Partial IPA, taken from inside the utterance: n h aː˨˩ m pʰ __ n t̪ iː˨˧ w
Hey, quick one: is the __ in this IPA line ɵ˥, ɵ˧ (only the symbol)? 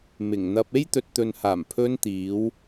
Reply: ɵ˧